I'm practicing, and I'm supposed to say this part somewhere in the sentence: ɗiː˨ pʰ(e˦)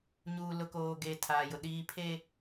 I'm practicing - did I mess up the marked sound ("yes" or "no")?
no